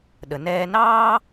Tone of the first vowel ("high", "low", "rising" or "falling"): low